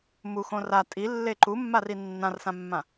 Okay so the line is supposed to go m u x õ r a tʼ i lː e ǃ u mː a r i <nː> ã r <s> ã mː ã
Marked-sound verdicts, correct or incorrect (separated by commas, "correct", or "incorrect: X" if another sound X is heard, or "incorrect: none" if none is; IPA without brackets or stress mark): correct, correct